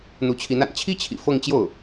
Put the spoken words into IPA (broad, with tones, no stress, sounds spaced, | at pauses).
n̪ u˧˥ t͡ɕʰ i˧˥ n a̰˨˩ n t͡ɕʰ i˥ t͡ɕʰ ḭ˨˩ f ɤ˥˧ ŋ t͡ɕ j o˥˩ ʊ̯